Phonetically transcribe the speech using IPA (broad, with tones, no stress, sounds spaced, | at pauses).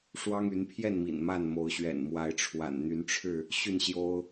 ʂ w ɑ˦ ŋ y˨˦ n pʰ j ɛ˥˨ n m ḭ˨˩ n m a˥˨ n m o˨˦ ʊ̯ ɕ ɥ ɛ̰˨˩ n m w a˨˦ ɪ̯ ʈ͡ʂʰ w a̰˨˩ n n̪ y˨˦ n ʈ͡ʂʰ ɻ̩˥˨ | ɕ y˥˨ n ɕ j o˦ ʊ̯